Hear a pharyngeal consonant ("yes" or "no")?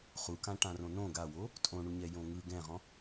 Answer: no